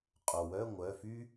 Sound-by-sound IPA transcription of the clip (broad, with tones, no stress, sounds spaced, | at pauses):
qʼ o˩ w œ˧˥˧ ŋʷ œ˩˧˩ f y˥